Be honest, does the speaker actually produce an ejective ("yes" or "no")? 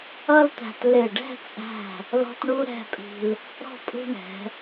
yes